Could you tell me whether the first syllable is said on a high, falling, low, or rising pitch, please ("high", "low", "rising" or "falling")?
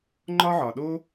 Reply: high